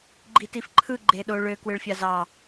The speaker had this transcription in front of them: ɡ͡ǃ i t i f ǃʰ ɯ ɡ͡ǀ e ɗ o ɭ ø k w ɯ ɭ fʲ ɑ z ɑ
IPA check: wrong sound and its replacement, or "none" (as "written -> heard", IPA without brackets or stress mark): ɡ͡ǀ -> ɡ͡ǃ